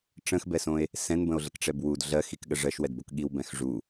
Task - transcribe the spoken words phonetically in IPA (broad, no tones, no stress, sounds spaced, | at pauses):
ʈ͡ʂ ə̃ x b ɛ s õ e̯ | s ɛ̃ n b ə̃ o̯ ɮ ə k ʈ͡ʂ ɛ b w u d ɮ ɜ x i k ɠ ə ʐ ɜ ʃ w ɛ d b o k ɠ i w b ɛ̃ x ʐ u